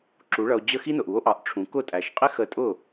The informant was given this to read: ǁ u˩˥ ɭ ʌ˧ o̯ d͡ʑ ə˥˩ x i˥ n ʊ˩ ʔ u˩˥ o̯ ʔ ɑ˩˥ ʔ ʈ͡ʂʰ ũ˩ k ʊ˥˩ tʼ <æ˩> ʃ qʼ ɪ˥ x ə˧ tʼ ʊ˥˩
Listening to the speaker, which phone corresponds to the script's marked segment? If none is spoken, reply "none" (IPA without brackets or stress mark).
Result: æ˩